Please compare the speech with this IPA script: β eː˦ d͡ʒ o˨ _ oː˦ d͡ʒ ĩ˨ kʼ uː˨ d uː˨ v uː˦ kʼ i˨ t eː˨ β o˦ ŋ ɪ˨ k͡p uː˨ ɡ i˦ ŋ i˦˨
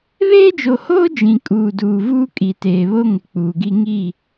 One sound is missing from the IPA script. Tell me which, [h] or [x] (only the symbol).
h